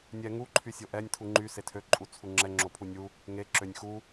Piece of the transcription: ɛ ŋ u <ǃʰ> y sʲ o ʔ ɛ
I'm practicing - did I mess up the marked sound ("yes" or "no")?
no